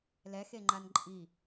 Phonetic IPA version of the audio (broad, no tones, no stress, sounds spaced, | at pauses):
l ɛ x e ŋ͡ǃ a n ǃʼ i